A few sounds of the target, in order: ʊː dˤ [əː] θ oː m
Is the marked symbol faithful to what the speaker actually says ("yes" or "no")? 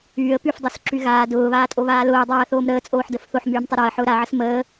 no